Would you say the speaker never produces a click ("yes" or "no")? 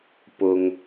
yes